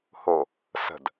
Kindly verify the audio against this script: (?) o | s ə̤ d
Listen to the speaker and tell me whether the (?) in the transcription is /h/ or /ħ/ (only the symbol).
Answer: h